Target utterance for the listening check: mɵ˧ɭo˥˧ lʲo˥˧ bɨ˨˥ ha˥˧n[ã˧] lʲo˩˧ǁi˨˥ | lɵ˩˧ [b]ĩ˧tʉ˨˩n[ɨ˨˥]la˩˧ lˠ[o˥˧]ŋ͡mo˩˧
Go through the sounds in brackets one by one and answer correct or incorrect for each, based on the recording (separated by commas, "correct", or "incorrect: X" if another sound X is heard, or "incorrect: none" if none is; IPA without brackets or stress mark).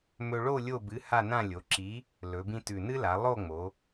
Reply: incorrect: ã˥˧, correct, incorrect: ɨ˥, correct